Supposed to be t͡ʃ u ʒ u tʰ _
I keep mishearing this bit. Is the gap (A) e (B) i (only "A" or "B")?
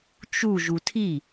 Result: B